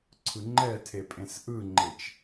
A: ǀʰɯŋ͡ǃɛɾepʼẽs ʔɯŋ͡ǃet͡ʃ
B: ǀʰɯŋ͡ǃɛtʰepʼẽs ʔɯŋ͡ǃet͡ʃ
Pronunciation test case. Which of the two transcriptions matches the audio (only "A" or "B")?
B